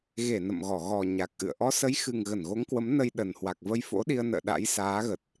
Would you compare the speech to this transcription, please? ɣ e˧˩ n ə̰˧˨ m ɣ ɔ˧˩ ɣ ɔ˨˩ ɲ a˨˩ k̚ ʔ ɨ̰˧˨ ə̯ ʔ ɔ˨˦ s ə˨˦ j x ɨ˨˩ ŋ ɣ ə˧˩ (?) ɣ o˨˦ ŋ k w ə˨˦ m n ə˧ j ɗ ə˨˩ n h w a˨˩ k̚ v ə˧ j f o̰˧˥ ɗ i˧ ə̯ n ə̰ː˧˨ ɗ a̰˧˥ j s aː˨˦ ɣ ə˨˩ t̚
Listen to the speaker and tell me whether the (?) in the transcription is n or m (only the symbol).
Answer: n